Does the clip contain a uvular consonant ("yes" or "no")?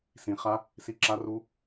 yes